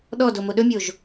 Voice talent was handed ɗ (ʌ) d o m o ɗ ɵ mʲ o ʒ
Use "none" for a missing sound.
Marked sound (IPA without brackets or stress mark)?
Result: ɔ